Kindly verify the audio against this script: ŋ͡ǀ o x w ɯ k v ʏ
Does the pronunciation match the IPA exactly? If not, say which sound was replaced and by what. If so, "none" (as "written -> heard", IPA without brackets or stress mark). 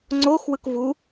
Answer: ʏ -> u